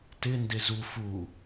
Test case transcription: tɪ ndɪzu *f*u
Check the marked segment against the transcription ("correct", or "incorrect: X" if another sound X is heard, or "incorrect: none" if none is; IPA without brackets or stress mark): correct